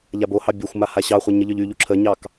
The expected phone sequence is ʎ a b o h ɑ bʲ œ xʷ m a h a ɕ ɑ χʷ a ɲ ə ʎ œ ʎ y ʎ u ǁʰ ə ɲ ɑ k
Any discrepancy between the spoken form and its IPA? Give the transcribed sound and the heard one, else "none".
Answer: none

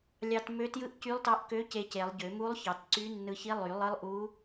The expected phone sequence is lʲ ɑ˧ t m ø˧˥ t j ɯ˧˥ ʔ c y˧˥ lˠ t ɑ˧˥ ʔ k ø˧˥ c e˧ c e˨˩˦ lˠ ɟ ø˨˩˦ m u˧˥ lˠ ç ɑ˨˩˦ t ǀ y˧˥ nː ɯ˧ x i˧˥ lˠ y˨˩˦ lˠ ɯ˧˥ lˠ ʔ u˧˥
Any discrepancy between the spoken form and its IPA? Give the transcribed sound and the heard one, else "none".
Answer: x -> ç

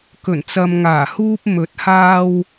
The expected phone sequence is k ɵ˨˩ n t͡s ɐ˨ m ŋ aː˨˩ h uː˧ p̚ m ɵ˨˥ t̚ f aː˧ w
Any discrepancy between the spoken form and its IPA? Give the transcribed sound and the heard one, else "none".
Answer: f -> h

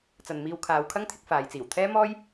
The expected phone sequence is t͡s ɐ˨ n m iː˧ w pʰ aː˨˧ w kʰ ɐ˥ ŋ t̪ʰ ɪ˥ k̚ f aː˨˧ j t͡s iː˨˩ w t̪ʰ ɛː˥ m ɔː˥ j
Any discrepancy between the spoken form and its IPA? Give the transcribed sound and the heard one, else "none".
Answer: pʰ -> kʰ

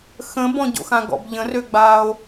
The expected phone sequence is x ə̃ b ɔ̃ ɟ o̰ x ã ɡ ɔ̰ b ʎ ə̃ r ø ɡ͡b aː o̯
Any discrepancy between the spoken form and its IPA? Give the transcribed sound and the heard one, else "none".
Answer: none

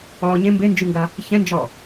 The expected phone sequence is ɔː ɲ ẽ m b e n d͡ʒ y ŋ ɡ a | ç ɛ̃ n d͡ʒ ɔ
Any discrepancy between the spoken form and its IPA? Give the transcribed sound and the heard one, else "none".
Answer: none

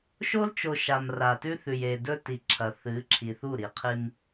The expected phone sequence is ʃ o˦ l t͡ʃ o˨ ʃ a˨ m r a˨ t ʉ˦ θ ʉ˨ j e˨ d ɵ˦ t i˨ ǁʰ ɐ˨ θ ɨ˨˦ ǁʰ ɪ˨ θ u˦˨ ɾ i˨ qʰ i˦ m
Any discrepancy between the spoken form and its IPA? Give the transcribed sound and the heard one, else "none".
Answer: ɪ˨ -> i˨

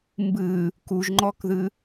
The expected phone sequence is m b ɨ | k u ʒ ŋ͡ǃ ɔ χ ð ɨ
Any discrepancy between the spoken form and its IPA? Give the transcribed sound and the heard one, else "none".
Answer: χ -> k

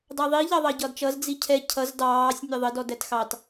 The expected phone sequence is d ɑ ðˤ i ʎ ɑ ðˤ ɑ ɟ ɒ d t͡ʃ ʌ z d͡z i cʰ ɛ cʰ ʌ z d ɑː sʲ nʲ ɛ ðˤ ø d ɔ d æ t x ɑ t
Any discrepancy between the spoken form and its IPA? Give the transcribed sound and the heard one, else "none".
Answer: ø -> ə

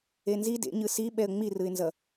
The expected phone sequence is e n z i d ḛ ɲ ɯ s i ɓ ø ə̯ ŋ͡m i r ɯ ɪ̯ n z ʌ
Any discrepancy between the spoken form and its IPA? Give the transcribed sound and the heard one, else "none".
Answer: ø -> ɛ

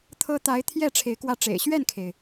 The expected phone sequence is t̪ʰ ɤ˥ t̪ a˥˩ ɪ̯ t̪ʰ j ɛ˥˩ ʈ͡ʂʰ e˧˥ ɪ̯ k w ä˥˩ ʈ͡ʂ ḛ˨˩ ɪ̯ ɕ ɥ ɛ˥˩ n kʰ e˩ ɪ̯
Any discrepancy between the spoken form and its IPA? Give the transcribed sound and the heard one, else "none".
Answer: a˥˩ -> a˧˥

